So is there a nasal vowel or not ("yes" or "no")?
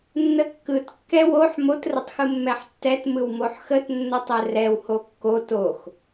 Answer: no